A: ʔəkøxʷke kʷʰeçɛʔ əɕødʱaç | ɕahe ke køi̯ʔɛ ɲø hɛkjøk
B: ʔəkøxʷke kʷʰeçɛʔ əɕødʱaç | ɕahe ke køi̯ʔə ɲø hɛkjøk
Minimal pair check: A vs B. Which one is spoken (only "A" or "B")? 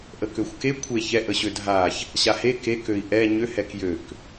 A